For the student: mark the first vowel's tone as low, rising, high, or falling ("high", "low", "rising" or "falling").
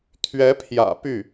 rising